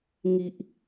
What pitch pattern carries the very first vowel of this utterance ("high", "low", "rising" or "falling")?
low